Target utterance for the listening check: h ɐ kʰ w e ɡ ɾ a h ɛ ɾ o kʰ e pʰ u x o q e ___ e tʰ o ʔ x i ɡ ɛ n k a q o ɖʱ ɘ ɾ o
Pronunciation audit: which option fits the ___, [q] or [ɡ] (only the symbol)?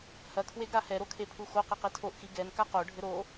q